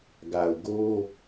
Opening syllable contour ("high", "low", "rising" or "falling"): low